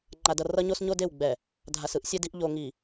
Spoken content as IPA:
ŋ͡ǃa˨dʌ˨ rʌ˦ɲo˦s ɲo˦de˦˨w ɡ͡bɛ˨ | dʱa˨sɯ˦ʔ sʲɛ˦di˦ʔ ʎo˨ŋi˨

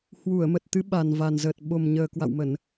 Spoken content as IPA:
hwu˧˩ə̯mə˨˩t̚t̪ɨ˨˦ ɓa˨˩nva˨˩nzəː˨˩t̚ ɓo˨˩mɲəː˨˩ kwa̰˧˨wmə˧˩˨n

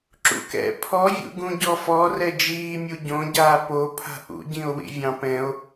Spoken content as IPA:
ǁṵkɛ̰ pʰɔvʲṵ ɡũɟɔfɔ rɛd͡ʒiːmʲu ɟõɟaː popʰa̤ ʔṵɟĩo̯ wḭvʲɑ̃pɛ̃o̯

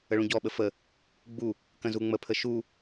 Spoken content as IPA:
əɭũɟɔɓə fə | ɡ͡bu | kə̃zuŋ͡məpʰə ʃu

